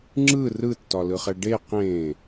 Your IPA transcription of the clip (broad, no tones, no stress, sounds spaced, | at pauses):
ŋ͡ǁ ɯ r ɯ tː ɒ l ɯ χ ɛ ɖ e q ẽ